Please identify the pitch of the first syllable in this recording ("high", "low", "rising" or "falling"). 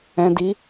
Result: low